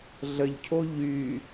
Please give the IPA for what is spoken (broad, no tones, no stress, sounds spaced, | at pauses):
ɮ ə ʎ cʰ o ʎ y